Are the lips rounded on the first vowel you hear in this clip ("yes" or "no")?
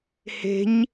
no